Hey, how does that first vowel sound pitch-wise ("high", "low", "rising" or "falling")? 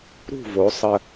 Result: falling